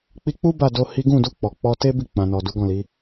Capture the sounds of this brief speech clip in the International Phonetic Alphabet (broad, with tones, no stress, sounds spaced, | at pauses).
k͡p i˧ k͡p u˦ b a˦˨ d o˧ h i˦ ɡ ũ˦˨ d u˧ k͡p ɔ˨ k͡p ɔ˧ t e˦ b i˦˨ k͡p ã˨ n ɔ˨ d u˨˦ ɡ ɔ̃˦˨ l i˨˦